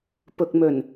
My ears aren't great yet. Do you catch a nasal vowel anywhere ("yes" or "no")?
no